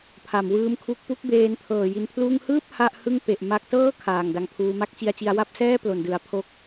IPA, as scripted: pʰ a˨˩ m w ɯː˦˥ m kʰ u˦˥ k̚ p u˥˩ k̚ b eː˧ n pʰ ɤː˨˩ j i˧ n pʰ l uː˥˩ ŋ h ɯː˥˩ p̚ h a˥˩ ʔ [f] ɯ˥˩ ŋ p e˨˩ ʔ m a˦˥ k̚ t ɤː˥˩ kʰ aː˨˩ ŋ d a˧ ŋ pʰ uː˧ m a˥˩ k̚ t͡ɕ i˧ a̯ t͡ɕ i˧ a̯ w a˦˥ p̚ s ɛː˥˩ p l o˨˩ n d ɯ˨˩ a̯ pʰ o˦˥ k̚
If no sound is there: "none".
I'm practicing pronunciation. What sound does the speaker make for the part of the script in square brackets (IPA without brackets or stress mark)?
h